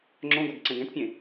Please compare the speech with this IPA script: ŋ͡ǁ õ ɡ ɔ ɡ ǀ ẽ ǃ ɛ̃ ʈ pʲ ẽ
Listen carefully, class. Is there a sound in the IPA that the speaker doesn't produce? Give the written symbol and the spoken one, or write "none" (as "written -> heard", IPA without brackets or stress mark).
ǃ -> ɡ